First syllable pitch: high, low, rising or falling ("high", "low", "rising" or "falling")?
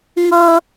high